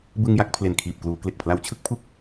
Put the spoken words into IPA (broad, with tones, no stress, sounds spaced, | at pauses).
b ɯ˧ ŋ j a˥˩ k̚ pʰ l e˨˩ n kʰ iː˨˩ p̚ k l uː˩˦ k l e˨˩ k̚ pʰ l a˧ w t͡ɕʰ ɯ˥˩ k̚ pʰ u˥˩ k̚